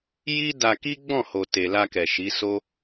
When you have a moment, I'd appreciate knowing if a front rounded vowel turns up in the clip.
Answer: no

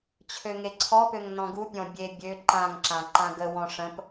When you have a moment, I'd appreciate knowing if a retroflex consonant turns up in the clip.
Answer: yes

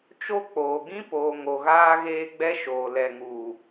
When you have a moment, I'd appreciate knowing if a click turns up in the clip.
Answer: no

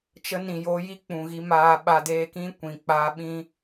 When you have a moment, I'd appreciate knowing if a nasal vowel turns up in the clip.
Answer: yes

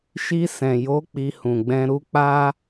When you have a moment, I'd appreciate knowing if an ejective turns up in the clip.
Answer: no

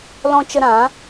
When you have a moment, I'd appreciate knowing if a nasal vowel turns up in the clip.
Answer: yes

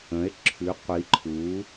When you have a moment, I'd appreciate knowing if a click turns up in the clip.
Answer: yes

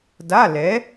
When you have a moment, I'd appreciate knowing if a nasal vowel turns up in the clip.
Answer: no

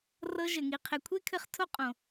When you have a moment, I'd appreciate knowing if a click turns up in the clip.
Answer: no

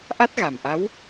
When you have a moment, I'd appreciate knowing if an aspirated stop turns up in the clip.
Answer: no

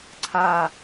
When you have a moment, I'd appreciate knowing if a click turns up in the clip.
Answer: yes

